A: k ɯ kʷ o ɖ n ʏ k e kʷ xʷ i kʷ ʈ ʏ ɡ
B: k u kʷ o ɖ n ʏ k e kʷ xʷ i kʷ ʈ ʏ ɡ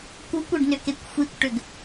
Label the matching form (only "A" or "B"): B